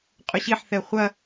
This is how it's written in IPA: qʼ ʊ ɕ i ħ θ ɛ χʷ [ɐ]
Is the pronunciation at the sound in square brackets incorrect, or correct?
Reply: correct